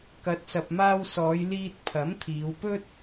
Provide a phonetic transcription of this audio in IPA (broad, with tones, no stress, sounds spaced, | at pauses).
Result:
k ɐ˨˥ t̚ s ɐ˨ p̚ m aː˧ w s ɔː˨˧ j l iː˧ t̚ pʰ ɐ˨˥ m t̪ʰ iː˨˧ w p ɵ˥ t̚